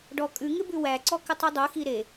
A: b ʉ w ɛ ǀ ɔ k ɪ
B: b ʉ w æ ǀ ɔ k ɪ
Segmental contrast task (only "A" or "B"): B